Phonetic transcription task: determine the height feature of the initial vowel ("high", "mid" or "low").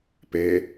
mid